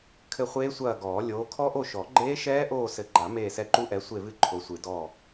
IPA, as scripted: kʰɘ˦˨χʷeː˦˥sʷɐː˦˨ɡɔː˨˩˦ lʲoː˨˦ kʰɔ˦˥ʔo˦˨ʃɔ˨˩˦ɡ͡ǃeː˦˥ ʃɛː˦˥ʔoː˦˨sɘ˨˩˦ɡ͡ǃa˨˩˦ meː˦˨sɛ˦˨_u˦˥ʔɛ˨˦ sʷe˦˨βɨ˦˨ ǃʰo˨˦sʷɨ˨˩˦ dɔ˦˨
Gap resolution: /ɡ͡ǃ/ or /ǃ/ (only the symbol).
ǃ